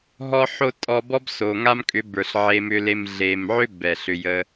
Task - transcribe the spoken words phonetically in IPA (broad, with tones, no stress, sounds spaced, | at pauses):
ɦ ɔ˧ ħ o˧ tʼ ɔ˧ b ɔ˦ b s o˨ ŋ a˦ m kʼ ʏ˨˦ b ə˞˨ ɬ ʕ e˧ m ʏ˧ l e˧ m ɮ e˨ m ʕ ʏ˦ b ɛ˨ ɬ ʏ˧ j ə˧